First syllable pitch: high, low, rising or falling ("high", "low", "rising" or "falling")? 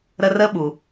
high